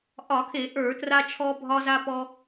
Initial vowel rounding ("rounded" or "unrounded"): rounded